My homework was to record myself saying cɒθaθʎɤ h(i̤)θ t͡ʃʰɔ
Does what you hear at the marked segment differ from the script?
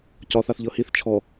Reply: yes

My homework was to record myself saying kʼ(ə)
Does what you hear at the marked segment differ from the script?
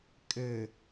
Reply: no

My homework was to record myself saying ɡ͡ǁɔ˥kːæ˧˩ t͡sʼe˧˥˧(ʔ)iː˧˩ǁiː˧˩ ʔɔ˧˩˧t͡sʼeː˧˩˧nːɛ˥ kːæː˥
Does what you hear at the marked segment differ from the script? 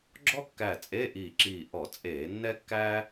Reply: no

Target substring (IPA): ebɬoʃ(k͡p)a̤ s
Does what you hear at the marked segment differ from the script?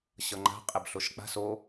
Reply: no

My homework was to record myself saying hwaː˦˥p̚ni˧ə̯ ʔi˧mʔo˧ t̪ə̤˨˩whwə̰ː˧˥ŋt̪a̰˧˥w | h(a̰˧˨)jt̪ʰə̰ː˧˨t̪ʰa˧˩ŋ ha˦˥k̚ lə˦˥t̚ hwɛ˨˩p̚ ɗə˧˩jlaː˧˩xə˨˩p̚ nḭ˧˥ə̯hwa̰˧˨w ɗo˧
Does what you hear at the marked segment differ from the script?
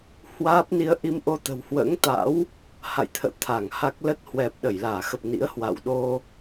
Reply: no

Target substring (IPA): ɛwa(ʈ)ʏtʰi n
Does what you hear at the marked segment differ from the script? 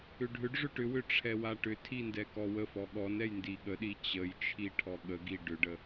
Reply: no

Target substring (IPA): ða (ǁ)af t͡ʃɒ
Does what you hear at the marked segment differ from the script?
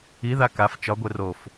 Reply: yes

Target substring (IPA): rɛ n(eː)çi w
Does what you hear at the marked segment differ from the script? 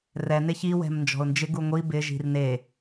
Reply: yes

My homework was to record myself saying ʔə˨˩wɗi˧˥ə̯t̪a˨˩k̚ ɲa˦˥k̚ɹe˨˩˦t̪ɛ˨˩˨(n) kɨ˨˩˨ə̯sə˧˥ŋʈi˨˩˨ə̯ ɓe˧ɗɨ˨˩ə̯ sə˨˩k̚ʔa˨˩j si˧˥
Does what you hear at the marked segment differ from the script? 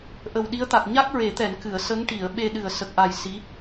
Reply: no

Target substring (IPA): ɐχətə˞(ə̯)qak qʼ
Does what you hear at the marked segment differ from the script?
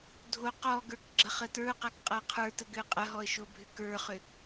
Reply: yes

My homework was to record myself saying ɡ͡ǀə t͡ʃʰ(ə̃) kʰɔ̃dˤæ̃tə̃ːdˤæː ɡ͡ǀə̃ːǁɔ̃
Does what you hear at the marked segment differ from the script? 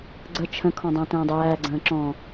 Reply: no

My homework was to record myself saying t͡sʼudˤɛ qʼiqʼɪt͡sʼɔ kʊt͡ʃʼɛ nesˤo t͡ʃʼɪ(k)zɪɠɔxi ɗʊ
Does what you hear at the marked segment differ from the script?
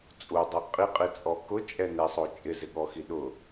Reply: yes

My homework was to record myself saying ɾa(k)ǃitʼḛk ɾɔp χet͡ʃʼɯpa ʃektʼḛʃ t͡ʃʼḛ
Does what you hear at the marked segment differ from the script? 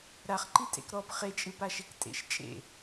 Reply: yes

